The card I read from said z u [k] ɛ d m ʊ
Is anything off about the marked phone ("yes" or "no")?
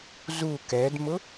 no